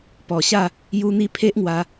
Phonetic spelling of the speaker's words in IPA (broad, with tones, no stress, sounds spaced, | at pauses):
p ɔ˨˩ ɕ a˥˧ | j u˧ n̪ i˧ pʰ e˦ ʔ ŋ w a˧